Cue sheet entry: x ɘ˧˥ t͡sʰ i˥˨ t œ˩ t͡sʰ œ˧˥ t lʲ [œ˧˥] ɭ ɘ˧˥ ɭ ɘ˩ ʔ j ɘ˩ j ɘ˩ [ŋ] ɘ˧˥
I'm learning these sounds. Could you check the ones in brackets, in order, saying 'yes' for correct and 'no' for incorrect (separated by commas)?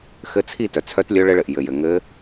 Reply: yes, yes